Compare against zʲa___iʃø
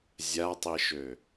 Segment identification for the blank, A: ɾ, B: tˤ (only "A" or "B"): B